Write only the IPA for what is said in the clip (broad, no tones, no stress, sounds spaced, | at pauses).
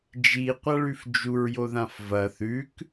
d͡ʒ i qʷ a ɭ ʉ f d͡ʒ u ɹ j o ð ã f v ɐ θ ʉ k